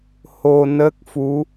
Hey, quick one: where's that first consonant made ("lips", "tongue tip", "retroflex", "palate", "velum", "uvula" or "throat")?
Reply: throat